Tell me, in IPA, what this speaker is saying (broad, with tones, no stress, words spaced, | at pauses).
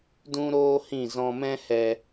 dũ˦ɾoː˦hĩ˦˨ zɔ̃˧mɛ̃˦ hɛ˧